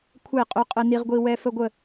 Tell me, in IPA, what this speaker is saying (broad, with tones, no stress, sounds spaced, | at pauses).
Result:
kʷʰ ɛ˥˨ qʼ ɵ˦ qʼ ə˦ n i˦ ʁ ɡʷ i˦ w ɛ˦ f ə˦ ɡʷ ə˥˨